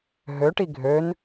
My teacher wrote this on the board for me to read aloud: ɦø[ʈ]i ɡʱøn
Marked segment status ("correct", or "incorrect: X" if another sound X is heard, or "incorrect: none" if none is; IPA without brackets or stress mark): correct